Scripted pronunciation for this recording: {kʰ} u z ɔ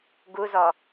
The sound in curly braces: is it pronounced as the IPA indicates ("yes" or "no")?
no